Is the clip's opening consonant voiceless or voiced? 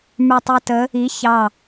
voiced